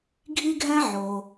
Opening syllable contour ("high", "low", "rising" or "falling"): high